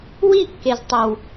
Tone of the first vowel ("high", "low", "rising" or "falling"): falling